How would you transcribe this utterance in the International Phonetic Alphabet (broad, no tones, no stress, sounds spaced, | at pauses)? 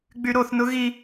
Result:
ɡ͡b y ɾ o θ n ʊ ɣ i